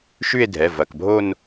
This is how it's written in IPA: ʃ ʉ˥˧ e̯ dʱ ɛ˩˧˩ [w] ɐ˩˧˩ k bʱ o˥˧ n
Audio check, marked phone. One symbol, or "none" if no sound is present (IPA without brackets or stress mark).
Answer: v